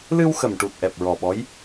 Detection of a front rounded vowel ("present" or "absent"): absent